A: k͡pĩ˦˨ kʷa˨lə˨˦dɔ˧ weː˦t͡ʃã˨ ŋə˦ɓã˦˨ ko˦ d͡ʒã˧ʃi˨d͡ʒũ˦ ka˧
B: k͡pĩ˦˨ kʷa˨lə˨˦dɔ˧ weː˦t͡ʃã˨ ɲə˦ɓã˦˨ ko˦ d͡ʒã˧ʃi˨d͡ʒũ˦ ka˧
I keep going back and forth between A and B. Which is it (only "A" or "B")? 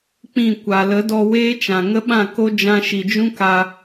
A